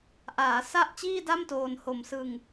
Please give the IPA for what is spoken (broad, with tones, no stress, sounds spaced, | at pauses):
ʔ aː˩˦ s a˥˩ ʔ t͡ɕ iː˥˩ d a˥˩ m t oː˧ n h o˨˩ m s ɯ˧ ŋ